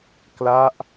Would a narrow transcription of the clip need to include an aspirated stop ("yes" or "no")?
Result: no